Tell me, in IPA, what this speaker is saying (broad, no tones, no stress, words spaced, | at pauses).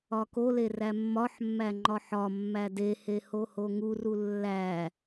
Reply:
ɒkole ræmːɒħmːæ ŋ͡ǃɒħɒmːæ dehe hohoŋuru lːæ